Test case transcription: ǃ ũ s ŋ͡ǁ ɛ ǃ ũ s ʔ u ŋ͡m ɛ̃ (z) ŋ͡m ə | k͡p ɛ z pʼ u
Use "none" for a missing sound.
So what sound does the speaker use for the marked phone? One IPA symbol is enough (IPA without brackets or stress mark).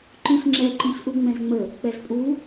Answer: z